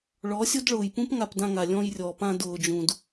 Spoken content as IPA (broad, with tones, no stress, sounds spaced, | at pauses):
ɭ ɔ˨˦ sʲ o˦ d ɭ ʊː˨ j p ũ˦ p ŋ a˧ p d ã˧ ŋ a˨ lʲ ɔ̃˧ j rʲ ɔ˨ p ã˧ d ʊː˨ d͡ʒ ũ˨ d